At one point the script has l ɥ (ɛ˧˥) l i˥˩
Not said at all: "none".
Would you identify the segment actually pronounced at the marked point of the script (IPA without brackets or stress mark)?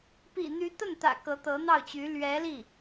ɛ˧˥